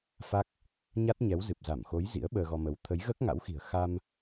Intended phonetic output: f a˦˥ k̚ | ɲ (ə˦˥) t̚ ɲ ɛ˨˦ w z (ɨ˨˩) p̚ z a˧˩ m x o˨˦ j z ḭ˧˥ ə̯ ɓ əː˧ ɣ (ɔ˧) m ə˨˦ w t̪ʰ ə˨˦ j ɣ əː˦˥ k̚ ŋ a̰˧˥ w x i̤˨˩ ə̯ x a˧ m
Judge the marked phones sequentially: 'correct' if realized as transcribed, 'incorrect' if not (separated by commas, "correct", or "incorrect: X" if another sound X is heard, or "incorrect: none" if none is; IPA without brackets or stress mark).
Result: incorrect: a˦˥, correct, correct